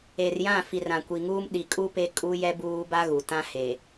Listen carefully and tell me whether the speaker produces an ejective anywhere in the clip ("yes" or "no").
yes